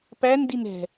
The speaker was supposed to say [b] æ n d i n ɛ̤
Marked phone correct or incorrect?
incorrect: p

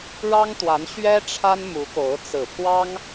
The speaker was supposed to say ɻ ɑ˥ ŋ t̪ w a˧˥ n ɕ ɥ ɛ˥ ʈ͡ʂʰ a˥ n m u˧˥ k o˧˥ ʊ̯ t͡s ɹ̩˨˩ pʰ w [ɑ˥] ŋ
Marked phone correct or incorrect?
correct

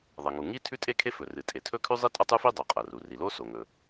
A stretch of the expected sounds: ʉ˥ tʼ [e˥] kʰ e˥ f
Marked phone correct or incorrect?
correct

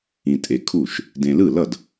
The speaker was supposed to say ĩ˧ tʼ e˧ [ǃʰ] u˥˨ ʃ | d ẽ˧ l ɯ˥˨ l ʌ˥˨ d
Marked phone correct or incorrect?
incorrect: kʰ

